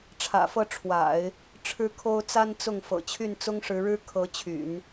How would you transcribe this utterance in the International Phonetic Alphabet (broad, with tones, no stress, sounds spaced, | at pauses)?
ʈ͡ʂʰ ä̰˨˩ f ɤ˥˩ ʈ͡ʂʰ w a̰˨˩˦ ɪ̯ | ʈ͡ʂʰ ɻ̩˥ kʰ o˥ ʊ̯ t͡s a˥ n t͡s ʊ˥˩ ŋ f ɤ̰˨˩ t͡ɕʰ y˥˩ n t͡s ʊ˥ ŋ ʂ ɻ̩˧˥ ɻ ɻ̩˥ kʰ ɤ˧˥ t͡ɕʰ y̰˨˩˦ n